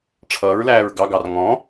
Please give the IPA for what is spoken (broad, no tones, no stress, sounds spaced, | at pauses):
ʈ͡ʂʰ ʌː ɹ l æː ɹ ɡ ɑ ɡ ɑ r ŋ ɔ̃